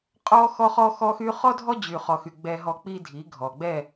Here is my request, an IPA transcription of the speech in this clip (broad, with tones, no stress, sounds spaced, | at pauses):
qʼ ɔ˦ x ɔ˦ χ ɔ˦ x ɔ˦ x y˦ χ ɔ˦ dʱ ɔ˦ d͡ʑ y˨ χ ɔ˨ x y˨ ɡ͡b ɛ˨ ɦ ɔ˨ k͡p i˦ dʱ i˨˦ ɡʱ ɔ˨ ɡ͡b ɛ˦˨